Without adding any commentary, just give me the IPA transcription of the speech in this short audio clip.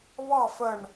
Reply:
β ɑ˥˨ f ə˧˩ ɳ

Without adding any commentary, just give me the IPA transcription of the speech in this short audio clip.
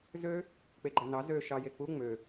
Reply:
z ø | k͡p e ɡ͡ǃ æ n ɑ z ø ʃ ɑ j e k͡p u ŋ͡m ø

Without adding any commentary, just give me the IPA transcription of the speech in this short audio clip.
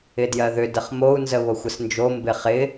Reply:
ɪ d j ɜ ð ʏ d ə χ m o u̯ n z ə β o xʷ ə s n d͡ʒ o m b ɪ χ ɪ

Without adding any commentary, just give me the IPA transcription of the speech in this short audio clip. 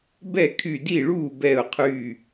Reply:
b ɛ˥˩ kʰ y˧˩ d i˥˩ ɭ uː˥˩ b ɛ˧˩ ʊ̯ qʰ y˧˩

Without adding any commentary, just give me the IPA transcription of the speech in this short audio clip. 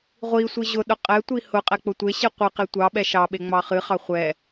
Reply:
ʁʷ i sʷ i ʑ ʊ ɗ ʊ qʼ ɛ tʷ i h ʊ qʼ ɛ k͡p ʊ tʷ e ɕ i qʷ ɨ q e tʷ ɑ ɓ ɛ ʃ ɑ ɓ e ŋ͡m ɑ χ ɨ χ ɑ χʷ ɛ

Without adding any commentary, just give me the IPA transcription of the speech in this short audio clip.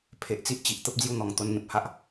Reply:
pʰ e˨ ʔ t͡s i˦ ʔ t͡ɕ i˨ ʔ t̪ ə˦ p̚ d͡z j u˥˧ n̪ ɔ˨˩ ŋ t̪ o˧ n ŋ ẽ˨ p̚ h a˦ ʔ

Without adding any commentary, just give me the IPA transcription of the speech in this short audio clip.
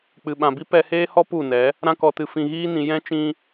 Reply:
k͡p ɨ˨ ɓ ã˨ b i˦ p ɛ˧ h eː˦ h ɔ˦ p u˦˨ n ɛ˨˦ | ɾ ã˧ k ɔ˨ t ɨ˨ f ĩ˨ ɣ iː˧ n ĩ˨ j ɛ̃˦ t͡ʃ ĩ˧

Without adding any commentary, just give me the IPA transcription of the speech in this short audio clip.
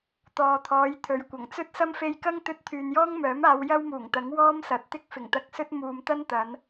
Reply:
t̪ ɔː˨ t̪ʰ ɔː˨˧ j t̪ʰ ɵ˨ ɥ kʷ ɐ˨˩ ŋ t͡s ɵ˥ t̚ s ɐ˥ m f e˧ j k ɐ˥ ŋ t̪ ɵ˧ t̚ t̪ʰ yː˨ n j ɔː˥ ŋ m œː˨˥ m aː˨˧ w j ɐ˥ w m uː˨˩ ŋ t̪ ɐ˨˥ ŋ w ɔː˥ m s ɐ˨˥ t̚ t̪ ɪ˥ k̚ f ɪ˨˩ ŋ t̪ ɐ˧ k̚ s ɵ˥ t̚ m uː˨ m t̪ ɐ˥ n t̪ ɐ˨˧ n

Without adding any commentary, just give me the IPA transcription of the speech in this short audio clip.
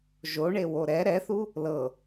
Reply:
ʒ o ɳ e w o ɾ ɛ ɾ ɛ θ u | l ɤ

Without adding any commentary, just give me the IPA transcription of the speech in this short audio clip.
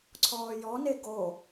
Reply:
ǀʰ ɔː j ɔ n e ɡ o

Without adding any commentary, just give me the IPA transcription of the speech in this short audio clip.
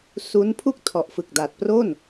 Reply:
s uː˦˥ n pʰ u˥˩ k̚ tʰ ɔ˨˩ ʔ f ɯ˨˩ k̚ d a˨˩ t̚ p r o˥˩ n

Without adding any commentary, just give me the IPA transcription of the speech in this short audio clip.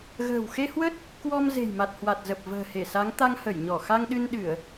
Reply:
ɣ ə̤ː˨˩ w x e˧ h w ə˦˥ t̚ | k w ɔ˧ m z e̤˨˩ j m a˨˩ t̚ h w a˨˩ t̚ z ə˨˩ p̚ v ə̤ː˨˩ h e˧˩ s a˨˦ ŋ t̪ a˧ ŋ h ə˧˩ j ɲ ɔ˧˩ x a˧ ŋ ɗ ɨ˧ n ɗ ɨ˧˩˨ ə̯

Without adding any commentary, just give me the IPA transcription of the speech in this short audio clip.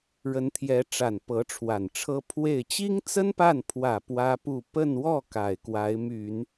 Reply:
ɻ ə˧˥ n t̪ʰ j ɛ˧˥ ʈ͡ʂ a˨˩ n p ɤ˧˥ ʈ͡ʂʰ w a˨˩ n ʈ͡ʂʰ ɤ˥ pʰ w e˥˩ ɪ̯ t͡ɕ i˥ ŋ t͡s ə˥ n p a˥˩ n pʰ w ä˨˩ p w ä˥ p u˥˧ p ə˥˧ n w ɔ˥˩ k a˨˩ ɪ̯ k w a˧˥ ɪ̯ m y˨˩˦ n

